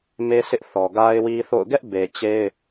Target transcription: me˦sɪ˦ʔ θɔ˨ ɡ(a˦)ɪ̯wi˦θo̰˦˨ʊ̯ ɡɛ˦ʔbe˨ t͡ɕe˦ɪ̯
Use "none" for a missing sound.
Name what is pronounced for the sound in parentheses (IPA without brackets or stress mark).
a˦